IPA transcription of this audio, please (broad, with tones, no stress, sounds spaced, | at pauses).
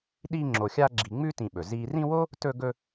ɗ iː˦ ŋ͡ǁ o˨ xʲ aː˦ ɡ͡ǁ i˨ ŋ͡m ʉ˥ t ĩ˨ ɓ ɵ˩ z iː˨ r ĩ˦ w o˥ | t ɵ˦ ɡ ɵ˦